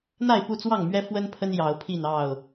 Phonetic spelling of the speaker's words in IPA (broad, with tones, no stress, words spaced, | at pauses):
n̪a˥˨ɪ̯pu˥˨t͡swɑ˥˨ŋmɥɛ˦ fwə˦npʰə˦n jɑ˨˦ʊ̯pʰi˥˨n ɑ˥˨ʊ̯